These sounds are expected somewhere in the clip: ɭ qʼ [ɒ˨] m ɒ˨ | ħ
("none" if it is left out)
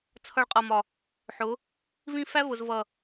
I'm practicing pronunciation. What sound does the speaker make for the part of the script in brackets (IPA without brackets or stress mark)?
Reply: ʌ˨